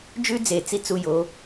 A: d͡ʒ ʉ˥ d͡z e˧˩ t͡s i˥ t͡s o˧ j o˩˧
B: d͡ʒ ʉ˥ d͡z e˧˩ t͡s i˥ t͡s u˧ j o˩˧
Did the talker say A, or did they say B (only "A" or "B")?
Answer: B